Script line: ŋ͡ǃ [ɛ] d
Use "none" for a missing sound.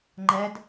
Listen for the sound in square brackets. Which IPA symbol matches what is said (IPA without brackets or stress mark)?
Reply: ɛ